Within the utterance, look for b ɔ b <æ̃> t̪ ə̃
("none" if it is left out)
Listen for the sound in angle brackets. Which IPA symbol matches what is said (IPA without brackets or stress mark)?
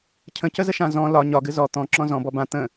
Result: ã